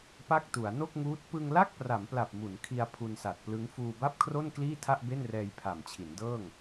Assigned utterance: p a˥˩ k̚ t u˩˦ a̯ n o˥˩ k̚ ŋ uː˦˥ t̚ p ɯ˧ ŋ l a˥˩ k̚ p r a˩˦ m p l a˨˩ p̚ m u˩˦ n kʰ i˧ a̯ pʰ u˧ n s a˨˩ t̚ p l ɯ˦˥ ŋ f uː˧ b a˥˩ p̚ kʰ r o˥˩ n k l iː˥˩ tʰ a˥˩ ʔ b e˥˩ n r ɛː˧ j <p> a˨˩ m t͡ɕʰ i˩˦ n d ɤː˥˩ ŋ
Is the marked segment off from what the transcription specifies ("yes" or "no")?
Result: yes